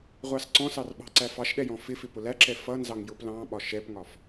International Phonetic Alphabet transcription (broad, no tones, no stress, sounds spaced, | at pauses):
ʁʷ ɑ s ǀ ɔ̃ s ɑ r ɓ ɑ̤ ǀ æ f ɑ ʃ ɗ ɛ j ɔ̃ f ɪ f ɪ p ʊ l æ ǁ ɛ f ʌ n z ɑ ŋ j ʊ p l ɑ̃ ɓ ɒ ʃ ɛ p ŋ ɒ f